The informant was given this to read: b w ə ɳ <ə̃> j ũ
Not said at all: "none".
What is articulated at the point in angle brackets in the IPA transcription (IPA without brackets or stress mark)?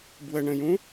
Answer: ə̃